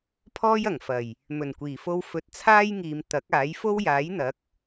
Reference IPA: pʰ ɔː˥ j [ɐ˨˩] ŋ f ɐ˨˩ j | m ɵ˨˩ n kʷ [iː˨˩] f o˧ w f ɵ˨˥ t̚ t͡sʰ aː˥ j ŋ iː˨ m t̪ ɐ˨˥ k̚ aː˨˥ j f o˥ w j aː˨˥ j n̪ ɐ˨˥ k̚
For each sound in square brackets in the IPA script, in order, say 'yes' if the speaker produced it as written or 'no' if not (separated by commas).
yes, yes